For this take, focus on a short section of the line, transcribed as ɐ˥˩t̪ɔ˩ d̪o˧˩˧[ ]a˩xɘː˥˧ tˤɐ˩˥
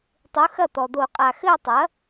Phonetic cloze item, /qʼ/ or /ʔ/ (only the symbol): qʼ